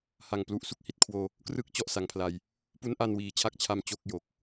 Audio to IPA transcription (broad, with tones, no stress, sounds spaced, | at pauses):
h a˨˩ ŋ p l u˨˩ ʔ s u˥˩ k̚ h i˨˩ t̚ kʰ w oː˧ | k r ɯ˦˥ k̚ t͡ɕ ɔ˥˩ ʔ s a˨˩ ŋ pʰ l a˧ j | p u˦˥ n ʔ a˧ n w iː˩˦ t͡ɕʰ a˦˥ k̚ t͡ɕʰ a˧ m t͡ɕ o˥˩ k̚ j o˨˩ k̚